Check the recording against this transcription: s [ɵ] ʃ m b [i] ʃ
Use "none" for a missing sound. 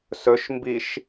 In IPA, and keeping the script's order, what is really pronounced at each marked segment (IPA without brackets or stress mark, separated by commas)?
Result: ɵ, i